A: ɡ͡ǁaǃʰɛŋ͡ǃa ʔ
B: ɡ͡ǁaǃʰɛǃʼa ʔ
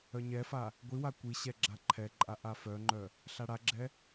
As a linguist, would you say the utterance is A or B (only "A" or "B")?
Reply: B